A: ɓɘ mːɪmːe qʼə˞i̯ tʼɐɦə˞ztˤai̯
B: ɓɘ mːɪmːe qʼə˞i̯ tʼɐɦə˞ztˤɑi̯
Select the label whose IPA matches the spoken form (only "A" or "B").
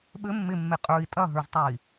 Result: A